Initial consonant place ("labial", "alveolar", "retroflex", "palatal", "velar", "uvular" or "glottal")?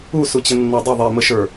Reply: alveolar